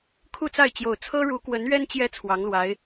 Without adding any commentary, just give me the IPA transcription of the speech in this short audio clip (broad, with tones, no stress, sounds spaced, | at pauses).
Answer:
kʰ u˥˧ t͡s a˥˩ ɪ̯ t͡ɕ j o˨˩ ʊ̯ t͡sʰ ɤ˥ ɻ u˧˥ k w ə˧˥ n ɥ ɛ˥ n t͡ɕ j ɛ˥ t͡sʰ w ɑ˧˥ ŋ l w a˧˥ ɪ̯